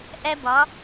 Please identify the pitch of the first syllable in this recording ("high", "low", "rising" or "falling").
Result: high